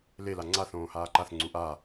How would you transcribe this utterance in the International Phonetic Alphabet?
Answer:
lela ŋ͡ǀaθõːhaː ǃaθŋ͡ǀu ʔa

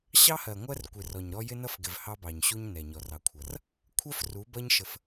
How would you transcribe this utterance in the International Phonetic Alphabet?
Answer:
ɕɑ˦hɜ˨ ŋʷɜ˦rkʷɪ˨rɔ˨ɲɾɔ˦ jɪ˦nʌ˦fɡɪ˨v hɑ˦bɑ˨ɲɕu˦ɲ nɛ˨ɲɔ˨rɑ˨kʷʰʌ˨r | kʷʰɜ˦fru˨˦bʌ˦ɲ ʃə˦f

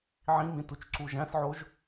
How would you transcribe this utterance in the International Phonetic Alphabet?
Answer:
ʕĩmĩ tut͡ʃǀuʒæ̃sʕoʒ

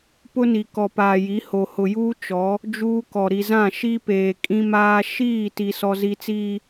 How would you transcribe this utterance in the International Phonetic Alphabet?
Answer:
pʊ˦ni˨ kɔ˨paː˨ ji˨˦ ho˨hʊ˨juː˦ t͡ʃɔ˨˦ | d͡ʒuː˦kɔ˨ ɾi˨zã˦˨ ʃi˦peː˨ kʼĩ˦maː˦ ʃiː˦˨ ti˨sɔ˨zi˨t͡siː˨

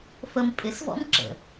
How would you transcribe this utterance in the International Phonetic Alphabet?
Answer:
fəm pʼɪsvɔ̰m ǁə̰

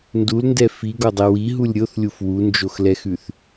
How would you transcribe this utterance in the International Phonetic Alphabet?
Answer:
ndulndɛ fiɡɔdˤɛ wiɦulʲ ɾʲoθlʲuf wund͡ʒoxlɛxʉθ

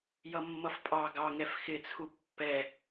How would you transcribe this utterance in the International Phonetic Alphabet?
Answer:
jʌmːʌfpʼɑ ɡɑŋɛf xɪt͡sʰu pːɛ

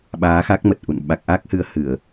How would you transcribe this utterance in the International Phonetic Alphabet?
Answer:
ɓaː˨˦xa˦˥k̚mə˨˩t̚ ʔṵ˧˨n ɓa˨˩k̚ʔa˦˥k̚hɨ˨˦ə̯ hɨ˧˩˨ə̯

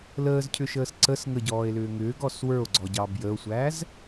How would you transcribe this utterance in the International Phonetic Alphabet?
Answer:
ləːzcʰʏʃəːs ǀəs ŋəɟɔːe̯lʏː ŋʏːɡɔs wə˞o̯ɡ͡ǀɔɟɑ bjəo̯sʷæz

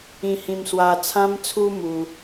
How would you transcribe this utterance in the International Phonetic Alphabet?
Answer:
ĩ˧hĩ˧m swa˧t͡sʰã˦mt͡sʰu˦ mu˦

